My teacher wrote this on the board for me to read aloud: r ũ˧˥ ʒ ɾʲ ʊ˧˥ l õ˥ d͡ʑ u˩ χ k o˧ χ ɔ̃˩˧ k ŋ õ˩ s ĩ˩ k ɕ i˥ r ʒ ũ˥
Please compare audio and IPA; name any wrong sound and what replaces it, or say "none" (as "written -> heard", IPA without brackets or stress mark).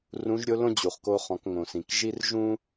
ɕ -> ʒ